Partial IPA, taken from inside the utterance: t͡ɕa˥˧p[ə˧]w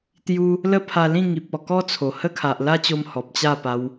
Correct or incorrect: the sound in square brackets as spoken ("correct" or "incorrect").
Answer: incorrect